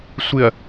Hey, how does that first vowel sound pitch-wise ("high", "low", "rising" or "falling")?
low